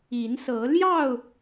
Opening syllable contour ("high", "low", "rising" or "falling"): rising